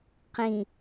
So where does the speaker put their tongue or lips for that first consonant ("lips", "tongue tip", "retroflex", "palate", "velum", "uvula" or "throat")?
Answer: uvula